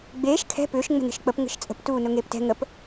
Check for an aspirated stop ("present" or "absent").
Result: present